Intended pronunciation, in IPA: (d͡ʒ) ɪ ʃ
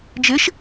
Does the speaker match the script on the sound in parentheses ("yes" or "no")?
yes